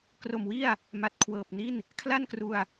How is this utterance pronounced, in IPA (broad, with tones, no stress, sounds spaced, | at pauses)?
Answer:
k r o˨˩ m w i˥˩ a̯ | m a˨˩ t̚ kʰ w ɤː˨˩ p̚ n i˥˩ n | kʰ l a˥˩ n k r u˧ a̯